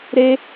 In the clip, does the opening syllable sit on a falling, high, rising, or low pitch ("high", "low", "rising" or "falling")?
high